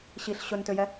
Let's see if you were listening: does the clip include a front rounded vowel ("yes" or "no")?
yes